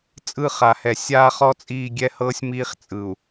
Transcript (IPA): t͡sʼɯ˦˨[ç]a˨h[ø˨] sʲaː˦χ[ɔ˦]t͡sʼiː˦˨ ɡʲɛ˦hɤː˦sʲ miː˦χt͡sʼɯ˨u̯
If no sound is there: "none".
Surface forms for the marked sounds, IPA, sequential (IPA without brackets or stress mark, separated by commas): χ, ɛ˨, ɔ˦